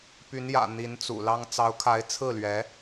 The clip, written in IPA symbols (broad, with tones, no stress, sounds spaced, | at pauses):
p y˧˥ n j ä̰˨˩ n̪ i˧˥ n t͡s ṵ˨˩ l ɑ˥ ŋ t͡s ɑ˧˥ ʊ̯ kʰ a˧˥ ɪ̯ t͡sʰ ɹ̩˥˩ l ɥ ɛ˧˥